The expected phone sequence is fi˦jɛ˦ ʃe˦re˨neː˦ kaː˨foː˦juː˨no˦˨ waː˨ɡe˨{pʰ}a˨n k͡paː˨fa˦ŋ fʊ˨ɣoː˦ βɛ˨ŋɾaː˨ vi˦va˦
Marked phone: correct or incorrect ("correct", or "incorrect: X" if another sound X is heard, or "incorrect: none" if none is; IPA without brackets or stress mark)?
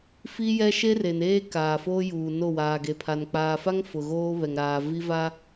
correct